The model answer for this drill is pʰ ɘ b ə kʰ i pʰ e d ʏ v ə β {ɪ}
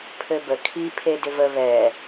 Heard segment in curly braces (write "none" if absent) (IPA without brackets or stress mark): ɛ